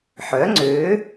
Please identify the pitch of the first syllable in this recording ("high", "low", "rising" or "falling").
rising